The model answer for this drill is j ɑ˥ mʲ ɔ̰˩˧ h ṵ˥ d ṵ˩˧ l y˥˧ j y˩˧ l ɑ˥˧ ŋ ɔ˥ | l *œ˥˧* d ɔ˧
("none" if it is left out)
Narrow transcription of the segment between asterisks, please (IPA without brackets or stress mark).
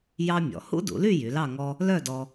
œ˥˧